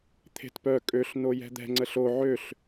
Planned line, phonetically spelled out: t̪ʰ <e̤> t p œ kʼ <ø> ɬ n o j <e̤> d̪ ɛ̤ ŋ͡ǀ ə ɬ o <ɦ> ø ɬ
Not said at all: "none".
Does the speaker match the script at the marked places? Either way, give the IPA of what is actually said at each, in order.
e̤, ø, ɛ̤, ʕ

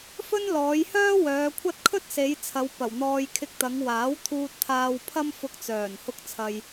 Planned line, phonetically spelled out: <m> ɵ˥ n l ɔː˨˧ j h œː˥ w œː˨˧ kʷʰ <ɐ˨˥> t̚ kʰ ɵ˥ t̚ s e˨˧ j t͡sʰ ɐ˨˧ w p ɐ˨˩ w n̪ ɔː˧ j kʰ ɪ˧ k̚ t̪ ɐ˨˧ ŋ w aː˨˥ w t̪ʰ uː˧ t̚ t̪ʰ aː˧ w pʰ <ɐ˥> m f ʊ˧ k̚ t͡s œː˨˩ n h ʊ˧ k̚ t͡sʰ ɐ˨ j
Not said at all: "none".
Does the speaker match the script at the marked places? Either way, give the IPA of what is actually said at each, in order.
f, ɐ˥, ɐ˥

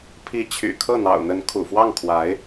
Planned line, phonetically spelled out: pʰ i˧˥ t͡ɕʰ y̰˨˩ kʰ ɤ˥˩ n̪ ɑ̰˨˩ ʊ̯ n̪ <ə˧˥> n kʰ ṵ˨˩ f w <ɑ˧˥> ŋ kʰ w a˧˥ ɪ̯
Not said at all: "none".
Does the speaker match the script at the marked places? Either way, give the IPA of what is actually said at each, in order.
ə˧˥, ɑ˥˩

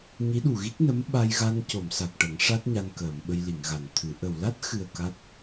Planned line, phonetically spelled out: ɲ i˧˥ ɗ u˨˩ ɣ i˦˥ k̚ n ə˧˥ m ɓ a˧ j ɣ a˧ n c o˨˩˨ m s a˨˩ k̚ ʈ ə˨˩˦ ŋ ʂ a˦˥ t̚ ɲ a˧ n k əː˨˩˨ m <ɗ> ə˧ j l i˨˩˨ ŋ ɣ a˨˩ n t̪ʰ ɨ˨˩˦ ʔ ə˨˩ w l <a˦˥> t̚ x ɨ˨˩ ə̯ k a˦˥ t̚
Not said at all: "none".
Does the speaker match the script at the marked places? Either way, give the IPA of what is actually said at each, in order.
ɓ, a˦˥

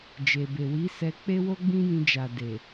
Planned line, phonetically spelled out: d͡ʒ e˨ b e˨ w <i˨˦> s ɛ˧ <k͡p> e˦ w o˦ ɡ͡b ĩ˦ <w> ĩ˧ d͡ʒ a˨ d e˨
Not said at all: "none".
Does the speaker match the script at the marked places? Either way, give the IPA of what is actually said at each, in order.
i˨˦, k͡p, j

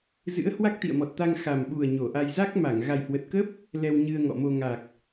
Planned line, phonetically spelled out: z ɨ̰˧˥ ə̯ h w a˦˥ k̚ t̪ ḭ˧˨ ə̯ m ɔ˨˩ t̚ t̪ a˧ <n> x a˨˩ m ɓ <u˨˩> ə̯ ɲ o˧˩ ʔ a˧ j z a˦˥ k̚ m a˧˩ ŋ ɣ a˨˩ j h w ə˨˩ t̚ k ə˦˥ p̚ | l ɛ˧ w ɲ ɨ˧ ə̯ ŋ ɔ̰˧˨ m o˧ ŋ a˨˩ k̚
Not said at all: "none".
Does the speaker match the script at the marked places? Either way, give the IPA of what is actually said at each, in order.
ŋ, u˨˩

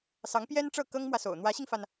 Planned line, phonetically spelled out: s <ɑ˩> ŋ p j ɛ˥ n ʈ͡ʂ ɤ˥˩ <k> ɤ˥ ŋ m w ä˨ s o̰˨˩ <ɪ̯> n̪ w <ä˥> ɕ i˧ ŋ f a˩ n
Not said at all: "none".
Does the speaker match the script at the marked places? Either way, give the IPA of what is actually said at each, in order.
ɑ˧˥, k, ʊ̯, ä˧˥

